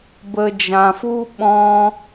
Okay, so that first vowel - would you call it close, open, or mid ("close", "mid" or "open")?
mid